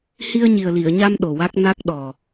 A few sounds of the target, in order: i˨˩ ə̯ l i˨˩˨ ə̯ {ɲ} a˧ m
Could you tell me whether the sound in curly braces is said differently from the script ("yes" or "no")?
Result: no